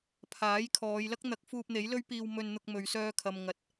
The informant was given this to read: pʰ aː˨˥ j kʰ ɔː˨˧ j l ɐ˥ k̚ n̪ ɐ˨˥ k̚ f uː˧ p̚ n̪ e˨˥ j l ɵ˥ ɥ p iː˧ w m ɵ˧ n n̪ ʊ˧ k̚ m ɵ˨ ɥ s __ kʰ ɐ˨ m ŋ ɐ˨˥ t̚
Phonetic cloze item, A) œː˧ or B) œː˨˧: A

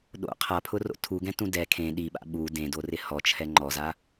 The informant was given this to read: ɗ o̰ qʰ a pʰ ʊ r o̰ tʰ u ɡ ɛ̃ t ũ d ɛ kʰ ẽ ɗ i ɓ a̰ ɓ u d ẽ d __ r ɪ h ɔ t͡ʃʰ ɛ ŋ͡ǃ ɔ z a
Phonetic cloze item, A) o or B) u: A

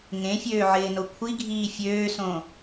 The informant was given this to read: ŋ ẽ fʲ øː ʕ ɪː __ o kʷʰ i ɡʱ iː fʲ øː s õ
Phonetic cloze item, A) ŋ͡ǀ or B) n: B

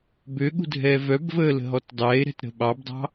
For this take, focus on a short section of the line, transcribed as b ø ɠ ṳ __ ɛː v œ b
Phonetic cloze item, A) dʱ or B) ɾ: A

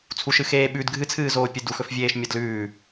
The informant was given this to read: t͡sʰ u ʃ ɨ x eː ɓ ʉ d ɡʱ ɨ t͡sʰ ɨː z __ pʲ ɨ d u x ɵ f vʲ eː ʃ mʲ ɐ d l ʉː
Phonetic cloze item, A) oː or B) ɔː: A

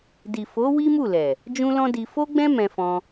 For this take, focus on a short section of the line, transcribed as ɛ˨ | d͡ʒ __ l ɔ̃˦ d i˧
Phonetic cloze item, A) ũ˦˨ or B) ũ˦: B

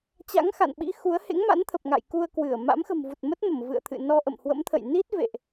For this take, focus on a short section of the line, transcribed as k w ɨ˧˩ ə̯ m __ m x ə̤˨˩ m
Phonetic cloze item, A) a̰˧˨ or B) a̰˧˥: B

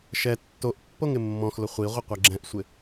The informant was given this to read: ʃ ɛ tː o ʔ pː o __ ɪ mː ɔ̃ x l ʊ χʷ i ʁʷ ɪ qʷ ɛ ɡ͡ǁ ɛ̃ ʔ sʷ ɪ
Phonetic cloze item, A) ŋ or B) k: A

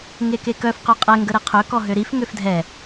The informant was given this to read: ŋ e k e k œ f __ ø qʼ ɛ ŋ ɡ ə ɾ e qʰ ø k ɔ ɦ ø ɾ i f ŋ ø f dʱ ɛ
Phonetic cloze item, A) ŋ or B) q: B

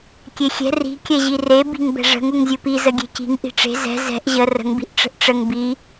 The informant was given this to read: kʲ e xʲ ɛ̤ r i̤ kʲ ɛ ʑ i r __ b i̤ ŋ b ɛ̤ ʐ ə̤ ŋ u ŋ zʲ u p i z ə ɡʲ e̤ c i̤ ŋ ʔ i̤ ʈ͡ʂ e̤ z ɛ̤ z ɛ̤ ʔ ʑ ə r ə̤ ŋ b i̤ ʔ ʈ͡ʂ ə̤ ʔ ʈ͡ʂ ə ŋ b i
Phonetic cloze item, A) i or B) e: B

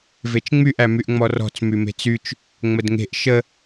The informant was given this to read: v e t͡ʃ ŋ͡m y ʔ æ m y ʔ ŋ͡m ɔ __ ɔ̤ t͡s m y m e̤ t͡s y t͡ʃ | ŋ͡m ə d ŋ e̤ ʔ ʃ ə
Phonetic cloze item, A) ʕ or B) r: B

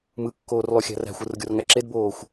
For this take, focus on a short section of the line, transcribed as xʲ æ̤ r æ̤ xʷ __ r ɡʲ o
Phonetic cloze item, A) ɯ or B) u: A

